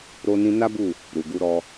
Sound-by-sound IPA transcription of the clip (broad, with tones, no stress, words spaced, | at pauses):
ɾo˧ nĩ˧ na˦bu˦˨ | ɾu˨ɡu˨˦ɾɔ˧